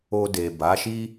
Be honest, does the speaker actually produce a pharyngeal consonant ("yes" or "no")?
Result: no